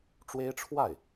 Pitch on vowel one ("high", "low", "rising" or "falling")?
high